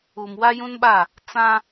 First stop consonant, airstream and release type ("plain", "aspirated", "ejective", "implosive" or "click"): implosive